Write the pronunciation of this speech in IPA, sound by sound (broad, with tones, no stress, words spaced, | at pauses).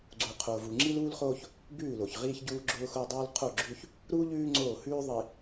ɡ͡ǀu˨qʰoː˨vu˨ŋ͡ǁi˦l uː˦lχoː˦ç | bʉː˦˨lo˨çʁiː˦ç ɟuː˦ɡ͡ǁʊː˦xʊː˦dˤuː˦l qʰo˦˨ɡ͡ǁʉ˦ç | ɾu˦ ʎʉː˦ ŋ͡ǀoː˦˨hʉː˦ ðˤi˨